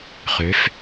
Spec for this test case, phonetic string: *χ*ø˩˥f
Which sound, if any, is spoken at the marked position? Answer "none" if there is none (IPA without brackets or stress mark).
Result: χ